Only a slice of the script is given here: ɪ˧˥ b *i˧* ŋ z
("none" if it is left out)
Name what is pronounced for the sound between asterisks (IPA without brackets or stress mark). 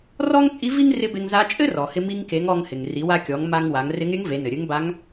e˧